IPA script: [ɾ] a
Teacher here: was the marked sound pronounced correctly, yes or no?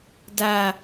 no